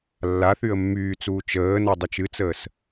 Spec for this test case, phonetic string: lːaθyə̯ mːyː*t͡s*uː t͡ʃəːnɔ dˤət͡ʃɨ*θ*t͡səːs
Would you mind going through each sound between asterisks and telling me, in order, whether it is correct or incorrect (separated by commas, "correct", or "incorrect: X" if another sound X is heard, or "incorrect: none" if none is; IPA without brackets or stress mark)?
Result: correct, incorrect: none